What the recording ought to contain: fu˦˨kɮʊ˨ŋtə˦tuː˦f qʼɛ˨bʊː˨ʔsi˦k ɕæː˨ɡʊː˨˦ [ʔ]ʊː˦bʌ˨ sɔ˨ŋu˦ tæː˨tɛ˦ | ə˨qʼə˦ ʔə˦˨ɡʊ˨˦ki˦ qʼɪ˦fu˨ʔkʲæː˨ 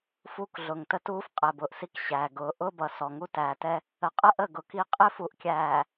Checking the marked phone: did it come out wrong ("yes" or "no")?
no